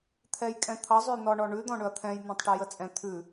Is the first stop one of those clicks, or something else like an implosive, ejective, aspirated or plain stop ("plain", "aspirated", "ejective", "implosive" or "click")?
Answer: aspirated